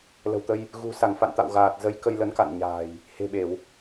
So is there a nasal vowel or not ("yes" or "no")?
no